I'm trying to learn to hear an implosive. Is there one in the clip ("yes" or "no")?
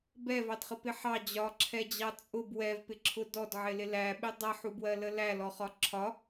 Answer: yes